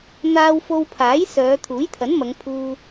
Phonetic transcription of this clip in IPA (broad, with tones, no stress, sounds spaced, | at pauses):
n̪ aː˧ w f o˧ w pʰ aː˨˥ j s œː˨˧ t̪ʰ uː˨˥ j t̪ʰ ɐ˨˥ n m ɐ˨˧ ŋ pʰ uː˧